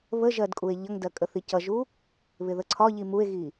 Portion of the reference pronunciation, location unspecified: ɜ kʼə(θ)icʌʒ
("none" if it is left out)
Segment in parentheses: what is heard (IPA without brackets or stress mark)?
θ